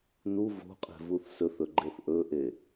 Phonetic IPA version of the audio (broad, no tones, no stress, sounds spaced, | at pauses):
n u v o̤ qʼ e̤ v u θ s ɵ θ ɵ ɡ͡ǃ e θ ʔ ɵ ʔ e